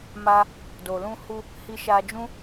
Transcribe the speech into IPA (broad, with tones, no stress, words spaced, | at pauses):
ma˧ | do˨lũ˧hu˧ | hi˧ʃa˧d͡ʒũ˦